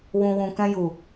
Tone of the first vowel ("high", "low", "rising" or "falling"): low